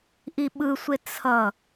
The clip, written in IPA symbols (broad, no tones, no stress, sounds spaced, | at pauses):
ʔ i ɓ ɯ sʷ e t͡sʰ ʌ